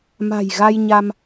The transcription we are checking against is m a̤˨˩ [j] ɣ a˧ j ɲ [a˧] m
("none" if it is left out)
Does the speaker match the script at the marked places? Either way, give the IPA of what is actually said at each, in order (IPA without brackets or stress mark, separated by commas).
j, a˧